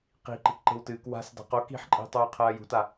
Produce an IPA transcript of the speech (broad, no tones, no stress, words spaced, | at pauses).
qi̤ ǃi̤kǃe̤wtɨːk wa̤s da̤qo ki̤ħǃʼe̤tˤoː qʰɐːjṳta